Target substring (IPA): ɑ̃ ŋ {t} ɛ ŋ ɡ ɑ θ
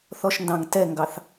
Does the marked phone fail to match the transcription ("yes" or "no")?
no